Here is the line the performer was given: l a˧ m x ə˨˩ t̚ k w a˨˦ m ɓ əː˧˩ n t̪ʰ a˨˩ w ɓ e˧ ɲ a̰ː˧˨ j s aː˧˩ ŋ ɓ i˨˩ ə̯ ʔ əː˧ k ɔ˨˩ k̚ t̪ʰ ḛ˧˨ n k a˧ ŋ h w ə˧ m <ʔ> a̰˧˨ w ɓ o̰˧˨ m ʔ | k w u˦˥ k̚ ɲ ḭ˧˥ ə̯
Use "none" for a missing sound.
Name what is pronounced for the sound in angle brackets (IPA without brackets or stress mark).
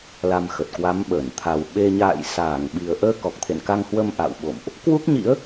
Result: ʔ